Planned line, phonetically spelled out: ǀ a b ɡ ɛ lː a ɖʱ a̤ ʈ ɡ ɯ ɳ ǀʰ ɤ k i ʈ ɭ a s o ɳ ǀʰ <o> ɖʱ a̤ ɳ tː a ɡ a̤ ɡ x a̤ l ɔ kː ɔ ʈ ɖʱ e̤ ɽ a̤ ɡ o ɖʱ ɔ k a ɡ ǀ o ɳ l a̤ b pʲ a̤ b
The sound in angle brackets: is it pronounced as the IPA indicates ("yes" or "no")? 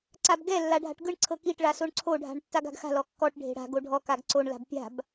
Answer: yes